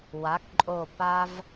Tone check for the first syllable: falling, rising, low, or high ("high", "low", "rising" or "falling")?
rising